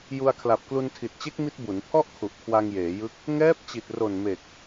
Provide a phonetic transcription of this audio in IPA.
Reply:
ju˧a̯kʰla˨˩p̚klu˧n tʰi˨˩t̚t͡ɕe˦˥k̚ mi˦˥t̚bu˩˦n pʰɔ˥˩ʔkʰu˨˩ʔkʰwa˧ŋ jeː˩˦jɯ˦˥k̚ | ŋɛː˦˥p̚t͡ɕi˨˩t̚ro˨˩n me˨˩k̚

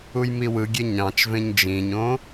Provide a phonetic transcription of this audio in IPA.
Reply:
ujmiwɯɡʲe ɲɑ̃t͡ʃvẽɲ d͡ʒĩɲõː

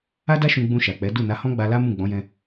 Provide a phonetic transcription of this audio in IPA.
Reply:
a˦da˦ ʃũ˧ɡ͡bũ˧ʃa˨k͡pɛ˨˦ du˦˨ na˨˦hɔ̃˦ɡ͡ba˧la˦ mũ˦˨ɡ͡bɔ̃˨˦jɛ̃˧

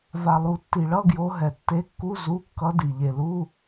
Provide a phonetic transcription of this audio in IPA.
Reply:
va˨lˠu˨tːi˨ɭʌ˧˥˧ ɡjo˧˥ɦɛ˨ tːe˧˥kːu˧˥˧ zu˧˥˧ kːʌ˧˥di˨ ʎe˨lu˧˥˧

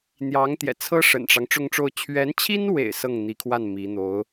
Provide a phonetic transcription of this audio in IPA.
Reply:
n̪jɑ˧˥ŋt̪jɛ̰˨˩t͡sʰɤ˥ ʂə̰˨˩nʈ͡ʂɑ˦ŋ ʈ͡ʂʊ˥˧ŋʈ͡ʂo˥˩ʊ̯ t͡ɕʰɥɛ˧˥nt͡ɕʰi˥nwḛ˨˩ɪ̯ sɤ˥˩ŋn̪i˧˥kʰwa˥˩n mi˧˥ n̪o˧˥ʊ̯

